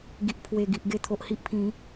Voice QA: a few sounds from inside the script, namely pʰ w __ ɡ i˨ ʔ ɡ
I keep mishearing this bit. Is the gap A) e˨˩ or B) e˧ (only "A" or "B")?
A